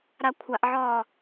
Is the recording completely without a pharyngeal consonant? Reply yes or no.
no